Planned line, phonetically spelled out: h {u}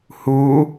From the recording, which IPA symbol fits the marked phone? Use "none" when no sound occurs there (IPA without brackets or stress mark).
u